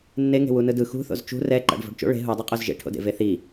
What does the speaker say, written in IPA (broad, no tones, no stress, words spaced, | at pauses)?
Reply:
nːeŋe̤ wunɯdɯ xṳθo̰z t͡ʃṳ rɛ ǃa̰ɖvo̤ɖt͡ʃo̰ ɭe̤ ɦudˤeqʼoz ʒḛʈʰo̰dḛ veθi